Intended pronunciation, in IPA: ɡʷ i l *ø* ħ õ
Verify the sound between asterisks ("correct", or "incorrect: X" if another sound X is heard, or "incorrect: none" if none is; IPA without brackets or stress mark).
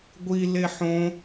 incorrect: e